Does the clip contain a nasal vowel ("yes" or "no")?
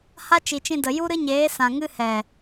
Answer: yes